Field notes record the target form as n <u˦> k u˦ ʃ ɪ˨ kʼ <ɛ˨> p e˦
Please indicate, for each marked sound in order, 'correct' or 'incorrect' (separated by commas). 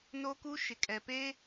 incorrect, correct